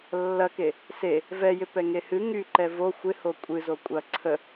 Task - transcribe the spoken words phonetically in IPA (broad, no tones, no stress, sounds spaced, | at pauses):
lː ɐ k e | s e | v ɛ j ɪ p ɛ ŋ e h ɨ ŋ y ǃ ɛ v o xʷ ɪ h o kʷʼ ɨ z o kʷʼ ɐ ǀʰ ə